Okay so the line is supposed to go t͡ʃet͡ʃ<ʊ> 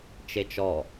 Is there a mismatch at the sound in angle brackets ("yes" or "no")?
yes